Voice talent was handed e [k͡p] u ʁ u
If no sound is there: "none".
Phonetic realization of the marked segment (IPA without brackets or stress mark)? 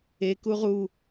k